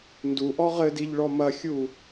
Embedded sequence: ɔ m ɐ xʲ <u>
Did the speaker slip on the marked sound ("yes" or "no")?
no